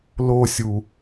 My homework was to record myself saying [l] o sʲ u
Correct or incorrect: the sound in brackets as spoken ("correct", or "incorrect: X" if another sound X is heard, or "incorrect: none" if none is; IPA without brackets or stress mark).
correct